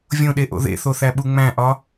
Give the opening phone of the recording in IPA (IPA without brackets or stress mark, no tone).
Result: vʲ